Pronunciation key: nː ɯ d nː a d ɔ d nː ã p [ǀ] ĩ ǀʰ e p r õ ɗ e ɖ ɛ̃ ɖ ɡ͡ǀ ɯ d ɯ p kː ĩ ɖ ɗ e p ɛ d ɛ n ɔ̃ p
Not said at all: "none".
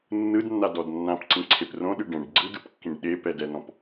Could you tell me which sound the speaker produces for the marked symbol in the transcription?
ǀ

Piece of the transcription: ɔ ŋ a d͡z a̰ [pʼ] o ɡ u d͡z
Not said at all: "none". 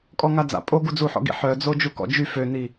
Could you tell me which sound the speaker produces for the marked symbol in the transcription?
pʼ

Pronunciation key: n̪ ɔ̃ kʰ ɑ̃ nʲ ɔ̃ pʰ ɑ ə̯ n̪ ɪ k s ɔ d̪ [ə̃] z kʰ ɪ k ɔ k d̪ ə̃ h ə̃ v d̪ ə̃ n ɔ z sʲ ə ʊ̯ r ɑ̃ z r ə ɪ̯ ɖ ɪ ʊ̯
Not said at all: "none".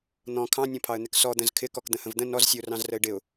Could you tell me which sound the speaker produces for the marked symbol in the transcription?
ə̃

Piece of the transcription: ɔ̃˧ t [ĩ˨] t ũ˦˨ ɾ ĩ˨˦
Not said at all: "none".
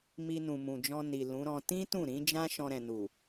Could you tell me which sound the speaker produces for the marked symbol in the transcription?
ĩ˦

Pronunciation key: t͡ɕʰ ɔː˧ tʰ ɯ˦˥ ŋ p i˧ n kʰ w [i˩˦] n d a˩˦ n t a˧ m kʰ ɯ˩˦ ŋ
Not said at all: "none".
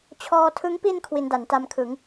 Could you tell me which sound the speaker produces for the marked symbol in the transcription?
i˧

